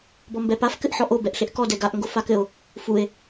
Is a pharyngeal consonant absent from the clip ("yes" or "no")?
no